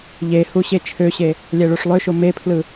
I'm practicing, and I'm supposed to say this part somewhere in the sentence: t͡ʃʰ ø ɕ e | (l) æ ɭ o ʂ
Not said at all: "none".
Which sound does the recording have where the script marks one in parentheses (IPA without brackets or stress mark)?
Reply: lʲ